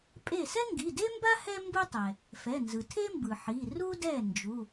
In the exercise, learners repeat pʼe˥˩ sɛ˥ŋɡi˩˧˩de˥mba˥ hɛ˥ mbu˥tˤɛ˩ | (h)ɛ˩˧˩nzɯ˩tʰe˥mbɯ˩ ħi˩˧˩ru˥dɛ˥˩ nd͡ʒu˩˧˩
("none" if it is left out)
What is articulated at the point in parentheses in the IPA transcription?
f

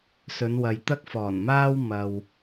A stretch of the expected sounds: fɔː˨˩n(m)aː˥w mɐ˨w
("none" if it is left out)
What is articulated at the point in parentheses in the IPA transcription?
m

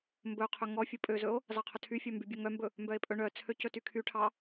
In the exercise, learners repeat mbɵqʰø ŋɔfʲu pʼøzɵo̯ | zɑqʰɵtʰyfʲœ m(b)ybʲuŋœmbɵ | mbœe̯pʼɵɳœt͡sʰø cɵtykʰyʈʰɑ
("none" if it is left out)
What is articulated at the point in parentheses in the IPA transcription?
b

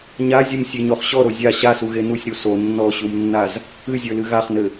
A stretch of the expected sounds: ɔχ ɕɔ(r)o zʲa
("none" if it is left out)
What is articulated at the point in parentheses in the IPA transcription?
ɾ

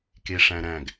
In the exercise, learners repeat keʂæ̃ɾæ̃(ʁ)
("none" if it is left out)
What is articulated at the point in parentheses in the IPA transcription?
ɡ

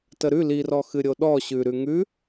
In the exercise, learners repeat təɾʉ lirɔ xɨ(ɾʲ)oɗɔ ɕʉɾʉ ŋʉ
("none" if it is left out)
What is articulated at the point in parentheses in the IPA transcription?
ɾʲ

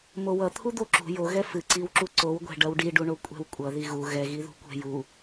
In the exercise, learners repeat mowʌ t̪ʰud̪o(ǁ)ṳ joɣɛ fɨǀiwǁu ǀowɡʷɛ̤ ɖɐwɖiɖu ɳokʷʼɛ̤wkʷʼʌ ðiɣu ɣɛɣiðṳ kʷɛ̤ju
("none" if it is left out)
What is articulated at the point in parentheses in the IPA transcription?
ǁ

